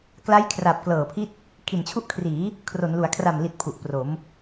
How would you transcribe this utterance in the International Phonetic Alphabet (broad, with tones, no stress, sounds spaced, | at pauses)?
k l a˦˥ j kʰ r a˨˩ p̚ k l ɤː˨˩ pʰ i˦˥ t̚ | kʰ i˨˩ n t͡ɕʰ u˦˥ ʔ kʰ r iː˩˦ | kʰ r o˩˦ n l u˩˦ a̯ kʰ r a˨˩ m l i˨˩ t̚ pʰ u˨˩ ʔ p r o˩˦ m